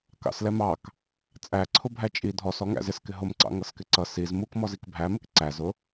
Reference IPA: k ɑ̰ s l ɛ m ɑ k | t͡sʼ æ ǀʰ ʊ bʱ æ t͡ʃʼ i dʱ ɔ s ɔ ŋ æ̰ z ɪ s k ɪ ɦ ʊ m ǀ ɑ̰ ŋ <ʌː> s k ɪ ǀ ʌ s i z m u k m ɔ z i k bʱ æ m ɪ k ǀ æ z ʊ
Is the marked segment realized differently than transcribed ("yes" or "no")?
yes